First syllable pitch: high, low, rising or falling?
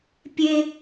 high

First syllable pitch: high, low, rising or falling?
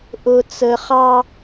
low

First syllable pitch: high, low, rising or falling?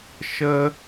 high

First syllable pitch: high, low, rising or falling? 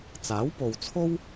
rising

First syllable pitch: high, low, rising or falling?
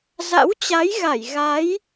rising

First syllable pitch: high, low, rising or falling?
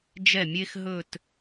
falling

